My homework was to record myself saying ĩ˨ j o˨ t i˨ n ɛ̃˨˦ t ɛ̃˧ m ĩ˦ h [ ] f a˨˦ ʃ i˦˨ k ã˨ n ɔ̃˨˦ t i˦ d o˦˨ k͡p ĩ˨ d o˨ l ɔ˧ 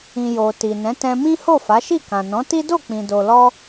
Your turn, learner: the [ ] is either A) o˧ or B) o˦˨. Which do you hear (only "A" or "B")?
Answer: B